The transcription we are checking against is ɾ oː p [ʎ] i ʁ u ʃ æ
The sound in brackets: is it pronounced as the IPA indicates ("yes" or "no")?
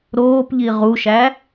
yes